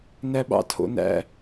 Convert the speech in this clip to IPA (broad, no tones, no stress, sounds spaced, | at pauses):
n æ ɓ ɑ̰ tʰ o̰ n æ̰